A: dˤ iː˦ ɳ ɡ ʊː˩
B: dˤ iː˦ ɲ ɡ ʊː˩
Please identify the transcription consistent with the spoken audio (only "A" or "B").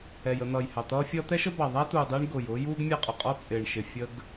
A